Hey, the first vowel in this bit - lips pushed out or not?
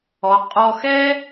yes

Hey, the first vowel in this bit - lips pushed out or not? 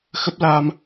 no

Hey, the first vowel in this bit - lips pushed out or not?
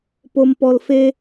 yes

